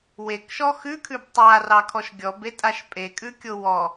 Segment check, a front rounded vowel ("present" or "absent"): absent